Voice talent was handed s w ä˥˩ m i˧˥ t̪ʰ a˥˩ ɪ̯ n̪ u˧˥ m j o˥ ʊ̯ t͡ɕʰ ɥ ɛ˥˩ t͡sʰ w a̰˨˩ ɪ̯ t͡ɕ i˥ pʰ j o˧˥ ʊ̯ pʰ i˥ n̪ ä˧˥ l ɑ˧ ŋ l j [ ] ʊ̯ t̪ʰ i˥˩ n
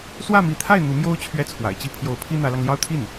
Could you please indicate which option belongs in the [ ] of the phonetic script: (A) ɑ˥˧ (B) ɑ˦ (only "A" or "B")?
A